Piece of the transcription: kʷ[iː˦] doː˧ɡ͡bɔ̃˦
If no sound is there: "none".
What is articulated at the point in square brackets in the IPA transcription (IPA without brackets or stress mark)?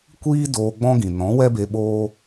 iː˦